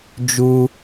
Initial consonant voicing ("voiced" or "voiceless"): voiced